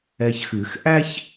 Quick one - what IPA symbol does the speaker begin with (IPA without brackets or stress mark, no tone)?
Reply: ɛ